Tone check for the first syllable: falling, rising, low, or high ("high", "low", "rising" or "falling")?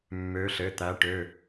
rising